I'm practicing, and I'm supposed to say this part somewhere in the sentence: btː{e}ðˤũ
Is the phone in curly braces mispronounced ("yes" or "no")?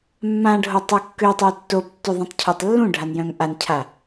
yes